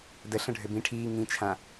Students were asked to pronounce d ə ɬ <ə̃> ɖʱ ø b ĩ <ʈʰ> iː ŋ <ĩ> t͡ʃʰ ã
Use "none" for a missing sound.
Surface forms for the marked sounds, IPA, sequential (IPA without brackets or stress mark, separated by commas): ə̃, ʈʰ, ĩ